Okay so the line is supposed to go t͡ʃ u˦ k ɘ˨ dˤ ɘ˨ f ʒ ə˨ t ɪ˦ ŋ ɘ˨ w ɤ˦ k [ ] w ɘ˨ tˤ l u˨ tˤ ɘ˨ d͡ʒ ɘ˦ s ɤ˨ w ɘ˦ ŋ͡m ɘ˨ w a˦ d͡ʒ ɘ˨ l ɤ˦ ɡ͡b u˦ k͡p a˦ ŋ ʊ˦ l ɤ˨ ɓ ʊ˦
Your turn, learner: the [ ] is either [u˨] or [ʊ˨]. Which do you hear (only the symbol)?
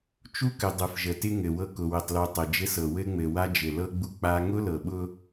ʊ˨